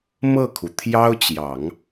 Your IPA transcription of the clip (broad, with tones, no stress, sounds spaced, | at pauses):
m ɤ˥˩ kʰ u˩ t̪ʰ j ɑ˥ ʊ̯ t͡ɕ j ɑ˨˩˦ ŋ